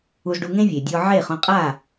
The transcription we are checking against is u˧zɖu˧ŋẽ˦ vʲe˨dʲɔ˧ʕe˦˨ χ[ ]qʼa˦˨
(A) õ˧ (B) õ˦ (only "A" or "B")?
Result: A